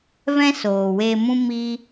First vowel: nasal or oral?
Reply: nasal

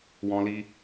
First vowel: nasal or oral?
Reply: nasal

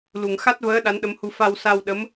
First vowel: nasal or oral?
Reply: oral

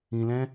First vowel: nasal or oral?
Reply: nasal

